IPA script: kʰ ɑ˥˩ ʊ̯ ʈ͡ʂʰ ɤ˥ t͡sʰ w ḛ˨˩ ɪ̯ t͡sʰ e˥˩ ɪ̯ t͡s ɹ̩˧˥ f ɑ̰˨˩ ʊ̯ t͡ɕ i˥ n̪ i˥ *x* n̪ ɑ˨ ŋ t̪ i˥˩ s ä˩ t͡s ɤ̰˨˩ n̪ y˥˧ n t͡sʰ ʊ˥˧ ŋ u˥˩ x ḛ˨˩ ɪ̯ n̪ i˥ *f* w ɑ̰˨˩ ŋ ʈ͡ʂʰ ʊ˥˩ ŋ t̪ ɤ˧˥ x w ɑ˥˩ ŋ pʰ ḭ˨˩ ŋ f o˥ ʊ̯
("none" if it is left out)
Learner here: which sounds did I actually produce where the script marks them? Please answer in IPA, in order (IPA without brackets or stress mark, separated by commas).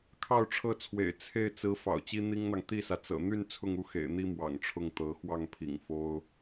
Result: ŋ, m